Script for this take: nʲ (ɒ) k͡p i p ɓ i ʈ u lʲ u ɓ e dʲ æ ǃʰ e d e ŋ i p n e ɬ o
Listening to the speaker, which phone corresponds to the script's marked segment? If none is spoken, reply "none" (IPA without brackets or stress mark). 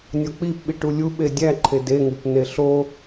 ɒ